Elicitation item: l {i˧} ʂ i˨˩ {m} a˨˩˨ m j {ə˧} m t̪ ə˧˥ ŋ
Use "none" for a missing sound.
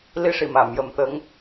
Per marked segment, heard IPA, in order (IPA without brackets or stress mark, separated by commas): i˧, m, ə˨˩˦